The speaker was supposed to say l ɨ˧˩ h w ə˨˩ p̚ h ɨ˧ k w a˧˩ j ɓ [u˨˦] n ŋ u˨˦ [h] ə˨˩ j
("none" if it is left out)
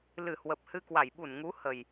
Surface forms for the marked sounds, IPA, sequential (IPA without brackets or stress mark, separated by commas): u˧˩, h